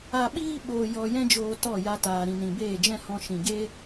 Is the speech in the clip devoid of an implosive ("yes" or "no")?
no